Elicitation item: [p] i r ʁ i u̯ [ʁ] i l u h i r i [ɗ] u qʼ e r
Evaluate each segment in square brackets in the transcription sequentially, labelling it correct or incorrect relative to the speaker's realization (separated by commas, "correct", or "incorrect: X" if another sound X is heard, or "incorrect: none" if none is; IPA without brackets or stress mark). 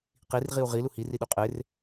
incorrect: q, correct, correct